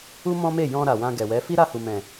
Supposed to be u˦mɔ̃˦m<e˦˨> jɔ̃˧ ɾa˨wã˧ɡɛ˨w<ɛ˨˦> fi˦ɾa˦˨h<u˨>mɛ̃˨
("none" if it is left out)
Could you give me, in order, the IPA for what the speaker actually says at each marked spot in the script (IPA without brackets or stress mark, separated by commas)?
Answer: e˦˨, ɛ˨˦, u˨